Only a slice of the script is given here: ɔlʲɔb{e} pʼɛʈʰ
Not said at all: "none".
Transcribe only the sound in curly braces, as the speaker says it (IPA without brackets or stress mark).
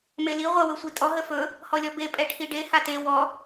e